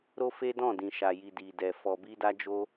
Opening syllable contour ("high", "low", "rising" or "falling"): high